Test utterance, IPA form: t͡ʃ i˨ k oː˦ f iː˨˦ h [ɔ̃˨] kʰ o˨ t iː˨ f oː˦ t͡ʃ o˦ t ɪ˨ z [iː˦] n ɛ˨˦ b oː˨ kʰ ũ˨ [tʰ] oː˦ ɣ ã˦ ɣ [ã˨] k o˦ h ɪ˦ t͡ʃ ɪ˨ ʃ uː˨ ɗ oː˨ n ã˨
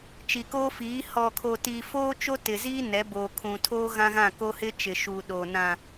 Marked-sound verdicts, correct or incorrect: incorrect, correct, correct, incorrect

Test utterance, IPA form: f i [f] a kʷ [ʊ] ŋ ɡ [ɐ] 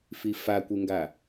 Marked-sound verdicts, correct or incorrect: correct, incorrect, incorrect

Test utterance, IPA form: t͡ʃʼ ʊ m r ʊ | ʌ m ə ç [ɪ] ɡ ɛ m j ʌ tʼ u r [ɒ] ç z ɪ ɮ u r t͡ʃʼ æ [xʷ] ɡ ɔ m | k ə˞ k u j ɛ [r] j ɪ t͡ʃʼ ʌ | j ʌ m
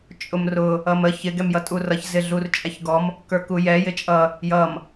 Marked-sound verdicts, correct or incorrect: correct, incorrect, incorrect, incorrect

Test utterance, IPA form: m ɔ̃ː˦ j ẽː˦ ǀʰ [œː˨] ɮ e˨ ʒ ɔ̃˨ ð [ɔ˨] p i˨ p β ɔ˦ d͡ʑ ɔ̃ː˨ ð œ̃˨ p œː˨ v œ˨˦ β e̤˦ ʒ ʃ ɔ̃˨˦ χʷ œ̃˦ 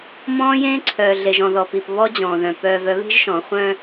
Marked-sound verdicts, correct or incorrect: correct, correct

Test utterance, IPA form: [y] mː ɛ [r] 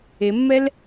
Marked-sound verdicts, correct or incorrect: incorrect, incorrect

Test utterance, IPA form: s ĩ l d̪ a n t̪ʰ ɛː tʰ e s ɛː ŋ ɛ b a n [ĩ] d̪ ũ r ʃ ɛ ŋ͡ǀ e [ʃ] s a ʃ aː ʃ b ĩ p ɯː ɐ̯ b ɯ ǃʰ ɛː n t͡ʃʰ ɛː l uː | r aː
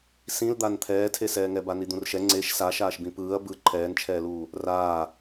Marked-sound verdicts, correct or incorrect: incorrect, correct

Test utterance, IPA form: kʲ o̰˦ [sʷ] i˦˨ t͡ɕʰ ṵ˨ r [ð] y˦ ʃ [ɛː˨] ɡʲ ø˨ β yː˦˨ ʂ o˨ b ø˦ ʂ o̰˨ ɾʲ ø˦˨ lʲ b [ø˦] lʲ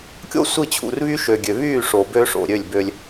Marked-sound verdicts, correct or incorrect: correct, incorrect, incorrect, correct

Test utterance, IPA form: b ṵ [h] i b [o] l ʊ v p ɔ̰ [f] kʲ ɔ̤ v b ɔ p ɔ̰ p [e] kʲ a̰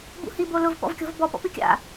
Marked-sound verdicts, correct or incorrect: correct, correct, incorrect, incorrect

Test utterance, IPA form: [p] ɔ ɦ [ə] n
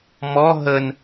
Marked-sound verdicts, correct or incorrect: incorrect, correct

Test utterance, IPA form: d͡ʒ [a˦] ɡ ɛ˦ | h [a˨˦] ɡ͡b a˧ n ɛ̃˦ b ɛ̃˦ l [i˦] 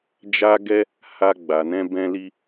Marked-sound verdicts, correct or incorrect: correct, incorrect, correct

